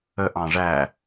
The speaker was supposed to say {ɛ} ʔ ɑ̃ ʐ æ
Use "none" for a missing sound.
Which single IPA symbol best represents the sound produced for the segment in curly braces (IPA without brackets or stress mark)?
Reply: ə